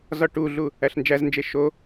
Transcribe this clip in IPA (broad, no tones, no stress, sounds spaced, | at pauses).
z ɒ ʈ u ɮ u | æ ɬ n d͡ʒ æ z n d͡ʒ e ʃ o